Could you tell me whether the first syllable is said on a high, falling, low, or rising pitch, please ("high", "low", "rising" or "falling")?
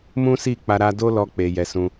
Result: high